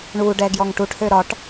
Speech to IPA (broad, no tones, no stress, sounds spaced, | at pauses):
ɳ u ɖ ɛ ɡ j ɔ ŋ ʈ u ʈ h ø ɾ ɒ ʈ